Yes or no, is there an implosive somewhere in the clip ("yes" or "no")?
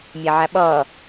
yes